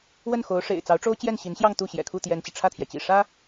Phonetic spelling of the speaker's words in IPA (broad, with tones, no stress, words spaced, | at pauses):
wə˥˩nxo˧˥ʊ̯ʂḛ˨˩ɪ̯ t͡sɑ˧˥ʊ̯ʈ͡ʂo˥ʊ̯ t͡ɕjɛ˥˩nɕi˧˥nɕjɑ˥˧ŋ t̪u˥˩ɕjɛ̰˨˩kʰu˥˩ t̪jɛ˥nt͡ɕi˨ ʈ͡ʂʰä˥˩t̪ʰjɛ˩t͡ɕḭ˨˩ ʂä˥